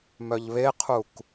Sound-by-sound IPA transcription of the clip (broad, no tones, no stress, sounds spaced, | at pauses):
m œ ʎ β e qʰ u k